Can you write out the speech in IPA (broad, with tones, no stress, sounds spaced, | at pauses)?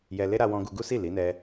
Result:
j ɛ˧ l e˦ ɾ a˧ w ɔ̃˧ ɡ u˧ ɡ u˦ s i˦˨ l i˨˦ n ɛ˧